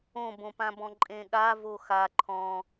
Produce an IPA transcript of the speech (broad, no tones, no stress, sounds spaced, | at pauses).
õ b õ p ã b ɔ̃ ǃʼ ẽ ɠ a v o x a ǃʰ ɔ̃